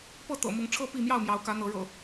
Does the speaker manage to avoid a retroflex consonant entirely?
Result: no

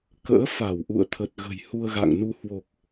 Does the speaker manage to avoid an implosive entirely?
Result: yes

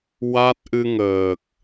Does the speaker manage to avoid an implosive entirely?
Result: yes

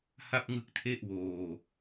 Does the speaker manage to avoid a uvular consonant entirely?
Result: yes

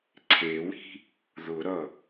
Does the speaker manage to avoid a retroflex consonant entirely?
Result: yes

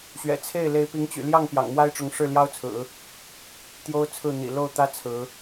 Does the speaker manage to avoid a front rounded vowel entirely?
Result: no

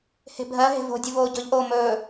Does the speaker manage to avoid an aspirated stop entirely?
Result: yes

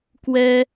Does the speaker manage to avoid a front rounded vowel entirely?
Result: yes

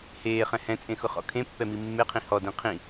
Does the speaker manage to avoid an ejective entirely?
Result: no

